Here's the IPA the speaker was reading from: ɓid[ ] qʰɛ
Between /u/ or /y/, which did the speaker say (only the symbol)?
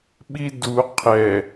u